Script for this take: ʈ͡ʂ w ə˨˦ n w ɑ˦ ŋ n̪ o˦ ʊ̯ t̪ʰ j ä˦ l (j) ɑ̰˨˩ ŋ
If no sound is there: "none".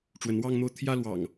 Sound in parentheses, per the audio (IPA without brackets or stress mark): w